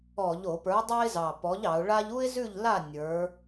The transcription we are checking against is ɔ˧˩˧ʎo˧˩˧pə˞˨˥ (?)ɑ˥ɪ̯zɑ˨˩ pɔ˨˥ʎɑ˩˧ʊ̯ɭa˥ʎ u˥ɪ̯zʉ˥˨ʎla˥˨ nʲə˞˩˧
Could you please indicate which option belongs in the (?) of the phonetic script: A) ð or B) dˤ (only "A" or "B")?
B